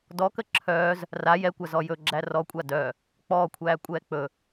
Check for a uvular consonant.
absent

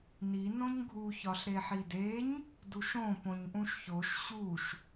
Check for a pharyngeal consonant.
present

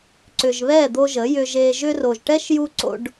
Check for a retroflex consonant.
present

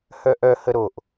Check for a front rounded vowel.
present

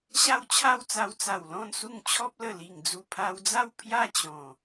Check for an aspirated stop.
present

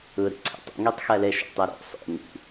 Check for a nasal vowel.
absent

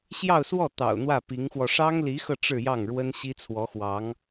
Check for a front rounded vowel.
absent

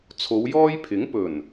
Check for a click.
absent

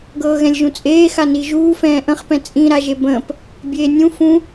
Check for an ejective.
present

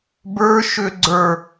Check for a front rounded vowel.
present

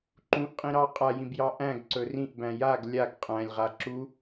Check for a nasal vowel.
present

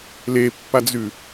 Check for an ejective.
absent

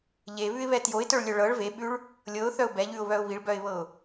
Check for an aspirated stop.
absent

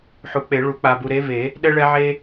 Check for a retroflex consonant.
present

